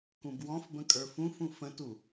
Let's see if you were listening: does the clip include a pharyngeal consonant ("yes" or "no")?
no